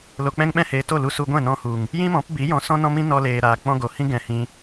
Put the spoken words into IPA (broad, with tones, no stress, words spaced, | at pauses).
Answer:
lo˨k͡pɛ̃˧ŋɓɛ̃˧heː˨ to˦˨lu˧su˧ɡʷɛ̃˦˨ nɔ̃˧hu˨ŋ | jĩ˦mɔ̃˨˦pbi˨˦ jɔ̃˧sɔ̃˦nɔ̃˦mĩ˦ nɔ˧leː˨ɾaː˨ k͡pɔ̃˧ ɡo˨hĩ˦ ɡɛ̃˧hĩ˧